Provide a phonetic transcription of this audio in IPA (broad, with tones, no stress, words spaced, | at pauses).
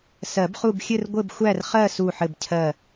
sɜ˨˩˦bχu˦˨b xʲɘ˦˨rɡʷɘ˦˨b xʷæ˦˨rχɜ˦˨ su˦˨ħɘ˦˨bcʰɜ˦˨